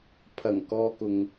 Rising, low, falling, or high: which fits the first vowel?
low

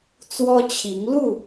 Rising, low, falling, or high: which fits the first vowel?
high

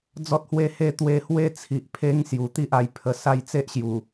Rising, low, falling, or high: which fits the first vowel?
high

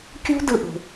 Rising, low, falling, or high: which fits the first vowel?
high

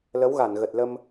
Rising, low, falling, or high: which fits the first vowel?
rising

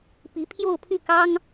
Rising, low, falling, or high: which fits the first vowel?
rising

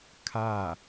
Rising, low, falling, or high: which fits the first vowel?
falling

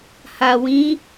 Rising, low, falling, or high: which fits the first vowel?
low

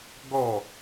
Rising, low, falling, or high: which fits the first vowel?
falling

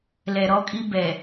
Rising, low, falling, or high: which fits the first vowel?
low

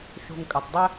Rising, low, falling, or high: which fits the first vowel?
low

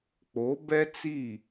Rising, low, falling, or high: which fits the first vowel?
rising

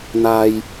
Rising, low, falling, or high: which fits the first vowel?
low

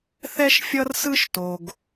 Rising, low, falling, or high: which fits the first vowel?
high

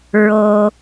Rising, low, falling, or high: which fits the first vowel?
low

